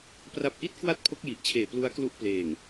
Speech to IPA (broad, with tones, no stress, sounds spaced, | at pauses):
p r a˦˥ p̚ ʔ i˥˩ t̚ k w a˥˩ t̚ pʰ o˦˥ k̚ j i˨˩ ʔ t͡ɕʰ eː˨˩ p l u˦˥ a̯ k l u˦˥ ʔ p l eː˨˩ ŋ